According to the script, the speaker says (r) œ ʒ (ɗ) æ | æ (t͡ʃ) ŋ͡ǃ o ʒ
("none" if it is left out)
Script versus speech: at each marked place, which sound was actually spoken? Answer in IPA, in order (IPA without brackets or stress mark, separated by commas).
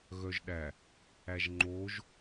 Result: ɣ, ɗ, ʒ